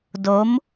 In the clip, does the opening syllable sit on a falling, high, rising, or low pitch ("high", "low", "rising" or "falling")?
rising